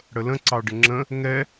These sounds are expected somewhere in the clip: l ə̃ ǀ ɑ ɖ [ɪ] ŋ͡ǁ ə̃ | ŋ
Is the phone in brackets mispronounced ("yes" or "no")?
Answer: no